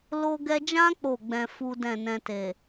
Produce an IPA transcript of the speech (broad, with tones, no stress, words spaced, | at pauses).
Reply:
lo˧ɡɛ˧d͡ʒã˦ k͡po˦˨ɡ͡bɛ̃˧ fu˦dɛ̃˦˨nɛ̃˧te˨